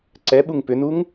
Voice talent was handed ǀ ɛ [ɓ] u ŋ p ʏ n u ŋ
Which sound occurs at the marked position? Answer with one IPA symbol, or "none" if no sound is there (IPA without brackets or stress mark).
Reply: ɓ